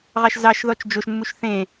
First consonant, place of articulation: uvular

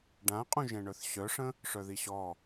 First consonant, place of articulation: retroflex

